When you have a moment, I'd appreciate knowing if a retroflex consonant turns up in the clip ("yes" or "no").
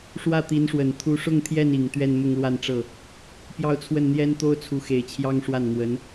yes